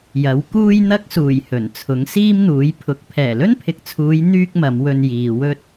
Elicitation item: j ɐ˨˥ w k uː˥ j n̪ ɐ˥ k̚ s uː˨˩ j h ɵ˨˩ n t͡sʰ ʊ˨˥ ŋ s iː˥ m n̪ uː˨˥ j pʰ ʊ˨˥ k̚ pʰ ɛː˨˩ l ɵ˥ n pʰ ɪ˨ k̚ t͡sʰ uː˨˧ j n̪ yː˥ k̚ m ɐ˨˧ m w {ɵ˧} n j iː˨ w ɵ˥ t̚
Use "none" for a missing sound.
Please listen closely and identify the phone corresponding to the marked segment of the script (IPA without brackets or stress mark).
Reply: ɵ˧